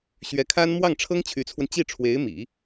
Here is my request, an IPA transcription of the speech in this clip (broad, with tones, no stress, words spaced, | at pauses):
ɕɥɛ˧˥kʰa˥n mwɑ˥˩ŋʈ͡ʂʰɤ˥ŋ t͡ɕʰy˧˥t͡sʰwə˧n t͡ɕi˥˩ʈ͡ʂʰwe˧˥ɪ̯mḭ˨˩˦